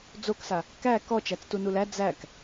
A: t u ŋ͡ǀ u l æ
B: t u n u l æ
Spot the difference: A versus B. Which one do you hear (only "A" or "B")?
B